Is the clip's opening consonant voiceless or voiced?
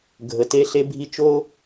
voiced